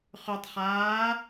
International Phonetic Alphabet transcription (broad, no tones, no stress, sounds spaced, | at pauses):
χ ʉ tˤ χ aː